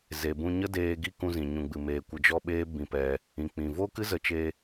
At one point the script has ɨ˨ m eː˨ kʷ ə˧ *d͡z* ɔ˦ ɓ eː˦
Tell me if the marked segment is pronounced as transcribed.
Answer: no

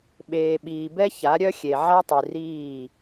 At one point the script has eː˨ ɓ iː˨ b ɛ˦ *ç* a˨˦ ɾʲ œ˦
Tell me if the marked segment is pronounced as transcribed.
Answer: yes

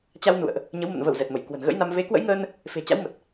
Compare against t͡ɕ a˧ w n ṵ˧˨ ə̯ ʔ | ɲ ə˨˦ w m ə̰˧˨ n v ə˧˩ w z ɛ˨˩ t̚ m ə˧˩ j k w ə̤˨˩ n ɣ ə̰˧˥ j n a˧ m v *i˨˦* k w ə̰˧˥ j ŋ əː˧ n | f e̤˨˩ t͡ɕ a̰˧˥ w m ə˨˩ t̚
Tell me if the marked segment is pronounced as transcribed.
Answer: no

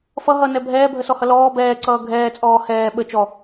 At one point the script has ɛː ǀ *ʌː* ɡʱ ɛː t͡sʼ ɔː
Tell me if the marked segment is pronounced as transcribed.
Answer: yes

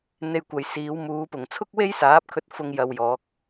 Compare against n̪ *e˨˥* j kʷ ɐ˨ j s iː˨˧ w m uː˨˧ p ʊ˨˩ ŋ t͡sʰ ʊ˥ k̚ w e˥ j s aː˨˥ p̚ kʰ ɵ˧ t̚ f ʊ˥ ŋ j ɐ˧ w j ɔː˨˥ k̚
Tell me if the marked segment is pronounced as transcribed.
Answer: no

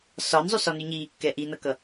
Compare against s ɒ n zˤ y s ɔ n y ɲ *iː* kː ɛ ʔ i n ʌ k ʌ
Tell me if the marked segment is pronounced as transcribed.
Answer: yes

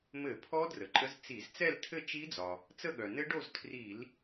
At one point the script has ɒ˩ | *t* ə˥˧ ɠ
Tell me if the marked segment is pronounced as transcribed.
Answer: no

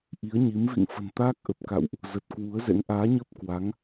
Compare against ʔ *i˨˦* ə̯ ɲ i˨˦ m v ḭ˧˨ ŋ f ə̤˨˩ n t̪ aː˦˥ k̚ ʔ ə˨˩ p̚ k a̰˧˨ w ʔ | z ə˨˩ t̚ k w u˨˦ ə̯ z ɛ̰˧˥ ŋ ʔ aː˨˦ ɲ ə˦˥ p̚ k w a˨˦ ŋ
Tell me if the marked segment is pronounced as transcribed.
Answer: yes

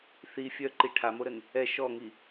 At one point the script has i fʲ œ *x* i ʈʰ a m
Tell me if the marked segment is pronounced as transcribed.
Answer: no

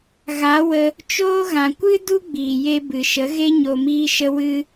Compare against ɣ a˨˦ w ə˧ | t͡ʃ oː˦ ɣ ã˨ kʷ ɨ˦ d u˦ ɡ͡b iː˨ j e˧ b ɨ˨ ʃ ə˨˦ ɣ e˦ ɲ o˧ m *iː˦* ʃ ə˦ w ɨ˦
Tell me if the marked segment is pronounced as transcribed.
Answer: yes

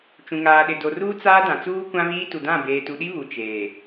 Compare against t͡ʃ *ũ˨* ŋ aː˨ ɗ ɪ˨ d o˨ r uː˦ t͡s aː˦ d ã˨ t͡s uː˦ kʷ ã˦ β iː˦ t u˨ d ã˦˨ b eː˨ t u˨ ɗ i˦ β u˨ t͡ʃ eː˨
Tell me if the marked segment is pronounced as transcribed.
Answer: yes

